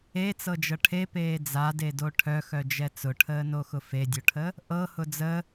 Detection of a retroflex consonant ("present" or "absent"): present